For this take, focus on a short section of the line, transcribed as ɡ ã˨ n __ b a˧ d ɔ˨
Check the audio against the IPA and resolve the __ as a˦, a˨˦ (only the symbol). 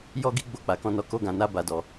a˨˦